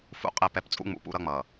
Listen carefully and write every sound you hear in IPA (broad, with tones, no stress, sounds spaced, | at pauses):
f ṵ˦ qʼ ɛ˦˨ p ɛ˦ p t͡sʼ ṵ˦ ŋ͡m ṵ˨ p ṵ˦ ɾ ʌ˦ ŋ͡m ʌ˨